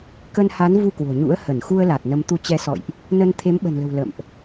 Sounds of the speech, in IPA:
k ə˧ n h a˨˦ n v u˧ k w o̤˨˩ ɲ ṵ˧˥ ə̯ h ə˧˩ n x u˧ ə̯ l a˨˩ t̚ n ə˨˦ m t̪ u˨˦ t͡ɕ ɛ˨˦ s ɔ̰˧˨ j ʔ | n ə˧ n t̪ʰ e˨˦ m ɓ ə̤˨˩ n l ə̤˨˩ w l ə̰˧˨ m ʔ

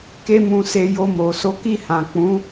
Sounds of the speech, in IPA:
k e˧ m ũ˨ s e˨ j o˧ m o˨ s o˨˦ k i˦˨ h ã˨ k͡p ũ˨˦

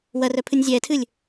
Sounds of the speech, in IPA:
w ɐ r œ pʰ ɨ nʲ zʲ ɛː tʰ ɨː lʲ

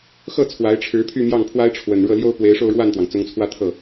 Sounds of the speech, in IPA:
x ɤ˥˩ t͡sʰ w a˧˥ ɪ̯ ʈ͡ʂʰ ɻ̩˧˥ pʰ y˥˧ m j ɑ˥˩ ŋ pʰ w a˥ ɪ̯ ʈ͡ʂʰ w ə˨˩ n ɻ ɤ˥˩ l j o˥ ʊ̯ p w e˧˥ ɪ̯ ʂ o˥˧ ʊ̯ ɻ w a˥˩ n t̪ w ɑ˩ ŋ t͡s ʊ˧˥ ŋ t͡sʰ w ä˥˧ t̪ʰ ɤ˥˩

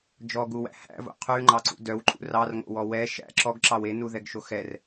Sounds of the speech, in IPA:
d͡ʒ ɔ ɡ u w æ̰ h æ̰ v o̰ qʰ ʉ ŋ͡ǃ ɑ ǀ ṵ d œ w ǃʼ ṵ r ɑ r ŋ o̰ w ɔ w ɛ ʃ æ̰ ǁ ɔ ɡ ǁ ɑ w e n u ð ɛ ɡ ʃ o x ɛ r

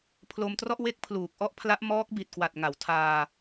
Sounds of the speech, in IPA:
pʰ l o˧ m t r ɔ˥˩ ʔ w e˦˥ k̚ pʰ l uː˨˩ k̚ ʔ ɔ˥˩ ʔ pʰ l a˦˥ ʔ m ɔː˦˥ k̚ b i˨˩ t̚ k w a˨˩ t̚ ŋ a˩˦ w tʰ aː˧

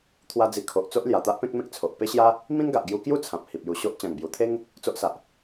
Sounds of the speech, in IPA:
t̪ʰ w a˦ d͡z i˧ kʰ o˨ ʔ t͡s o˦ ʔ l j a˨˩ t̪ a˦ ʔ p ẽ˦ k̚ m ẽ˦ k̚ t͡sʰ o˨ ʔ p e˦ ɕ j a˦ | m ĩ˦ n ɡ a˨ ʔ ɡ j u˧ k j u˥˧ t͡sʰ ã˨ p̚ h i˨ p̚ j u˧ ɕ o˦ ʔ t͡ɕ ã˨˩ ŋ b j u˨˩ t̪ʰ e˦ ŋ | t͡s o˦ ʔ s a˨ ʔ

